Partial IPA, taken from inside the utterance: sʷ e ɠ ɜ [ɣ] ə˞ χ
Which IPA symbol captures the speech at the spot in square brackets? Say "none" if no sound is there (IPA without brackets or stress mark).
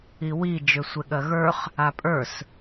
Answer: ɣ